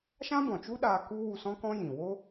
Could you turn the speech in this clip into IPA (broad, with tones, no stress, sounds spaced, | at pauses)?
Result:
ʃ ã˦ b ɔ̃˨ t͡ʃ u˦ ɗ aː˧ k u˦ w u˧ s ɔ̃˦ k ɔ̃˦ j ĩ˨ w o˦